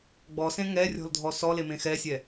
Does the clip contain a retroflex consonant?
no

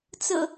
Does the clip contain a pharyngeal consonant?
no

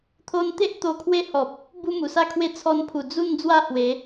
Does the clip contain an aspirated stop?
yes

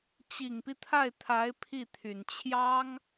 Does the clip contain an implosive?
no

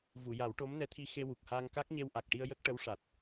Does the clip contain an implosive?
no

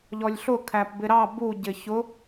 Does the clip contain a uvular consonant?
no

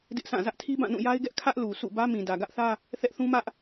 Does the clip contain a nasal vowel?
yes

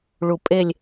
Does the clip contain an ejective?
yes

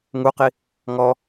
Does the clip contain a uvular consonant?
yes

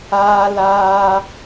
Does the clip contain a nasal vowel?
no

